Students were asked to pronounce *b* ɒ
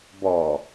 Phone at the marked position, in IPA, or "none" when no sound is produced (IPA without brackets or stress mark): b